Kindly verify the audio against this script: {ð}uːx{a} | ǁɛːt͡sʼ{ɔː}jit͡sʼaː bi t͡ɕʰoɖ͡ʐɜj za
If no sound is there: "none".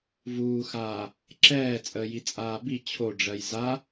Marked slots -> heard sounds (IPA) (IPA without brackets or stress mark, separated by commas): v, aː, əː